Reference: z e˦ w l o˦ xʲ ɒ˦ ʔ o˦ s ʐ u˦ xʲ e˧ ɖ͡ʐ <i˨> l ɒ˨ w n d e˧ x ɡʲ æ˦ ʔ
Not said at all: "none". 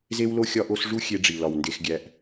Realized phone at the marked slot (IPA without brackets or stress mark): i˨